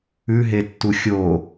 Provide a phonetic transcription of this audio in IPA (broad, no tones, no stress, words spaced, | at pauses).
ʉɦetːu xʲo